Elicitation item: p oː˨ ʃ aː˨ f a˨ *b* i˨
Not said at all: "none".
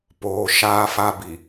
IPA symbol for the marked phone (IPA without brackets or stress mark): b